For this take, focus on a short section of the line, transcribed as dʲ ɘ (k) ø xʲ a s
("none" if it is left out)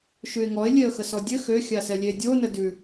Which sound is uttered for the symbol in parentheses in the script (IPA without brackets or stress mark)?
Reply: x